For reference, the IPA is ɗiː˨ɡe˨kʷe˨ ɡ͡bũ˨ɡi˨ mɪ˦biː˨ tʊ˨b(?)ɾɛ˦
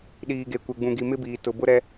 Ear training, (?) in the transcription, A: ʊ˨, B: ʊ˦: B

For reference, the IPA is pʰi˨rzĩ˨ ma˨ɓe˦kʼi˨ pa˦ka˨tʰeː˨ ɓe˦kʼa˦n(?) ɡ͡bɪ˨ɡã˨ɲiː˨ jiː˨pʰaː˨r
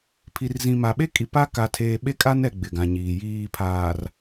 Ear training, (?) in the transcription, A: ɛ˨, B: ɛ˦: A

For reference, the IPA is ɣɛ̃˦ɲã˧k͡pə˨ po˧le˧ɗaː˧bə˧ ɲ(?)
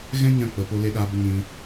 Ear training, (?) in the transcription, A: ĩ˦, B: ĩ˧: B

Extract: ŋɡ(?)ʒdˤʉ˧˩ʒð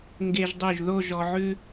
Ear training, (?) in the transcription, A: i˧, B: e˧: B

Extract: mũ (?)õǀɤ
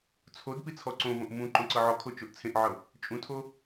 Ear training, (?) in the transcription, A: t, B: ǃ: B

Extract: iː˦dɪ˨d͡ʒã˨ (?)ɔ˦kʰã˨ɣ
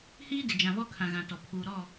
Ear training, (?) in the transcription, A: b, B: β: B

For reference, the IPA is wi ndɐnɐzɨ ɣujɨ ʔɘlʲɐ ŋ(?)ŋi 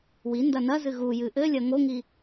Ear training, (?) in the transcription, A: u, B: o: B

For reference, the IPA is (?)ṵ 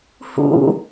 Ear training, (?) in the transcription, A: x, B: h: B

